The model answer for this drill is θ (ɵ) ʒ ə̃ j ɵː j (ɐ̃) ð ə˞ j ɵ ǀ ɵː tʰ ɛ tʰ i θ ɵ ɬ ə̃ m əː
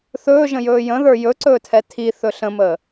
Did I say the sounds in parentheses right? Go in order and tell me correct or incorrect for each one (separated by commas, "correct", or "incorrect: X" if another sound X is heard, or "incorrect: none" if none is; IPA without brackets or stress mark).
incorrect: ɵː, incorrect: ə̃